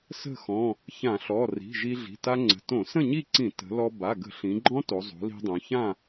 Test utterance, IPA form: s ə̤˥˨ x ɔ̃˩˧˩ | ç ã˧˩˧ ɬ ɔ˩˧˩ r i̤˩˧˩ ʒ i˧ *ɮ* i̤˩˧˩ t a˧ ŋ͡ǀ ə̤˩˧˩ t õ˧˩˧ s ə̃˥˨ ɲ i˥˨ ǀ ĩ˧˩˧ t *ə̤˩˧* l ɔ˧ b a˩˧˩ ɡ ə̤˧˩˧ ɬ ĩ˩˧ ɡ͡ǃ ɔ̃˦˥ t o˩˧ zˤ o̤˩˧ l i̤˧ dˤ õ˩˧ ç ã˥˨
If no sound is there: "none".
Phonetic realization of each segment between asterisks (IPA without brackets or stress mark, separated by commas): ɮ, ə̤˩˧